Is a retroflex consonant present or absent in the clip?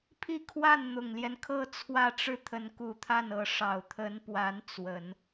present